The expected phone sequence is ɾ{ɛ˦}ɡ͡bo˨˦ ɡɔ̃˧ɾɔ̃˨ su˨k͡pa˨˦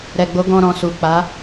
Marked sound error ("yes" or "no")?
yes